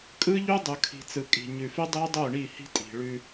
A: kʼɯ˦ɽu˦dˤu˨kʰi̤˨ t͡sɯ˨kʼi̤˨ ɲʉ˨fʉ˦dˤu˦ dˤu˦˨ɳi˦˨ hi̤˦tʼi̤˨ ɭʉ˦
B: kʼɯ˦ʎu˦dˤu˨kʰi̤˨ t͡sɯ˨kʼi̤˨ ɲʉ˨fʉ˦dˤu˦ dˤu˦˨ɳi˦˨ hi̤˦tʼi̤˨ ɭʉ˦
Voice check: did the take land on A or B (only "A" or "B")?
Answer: B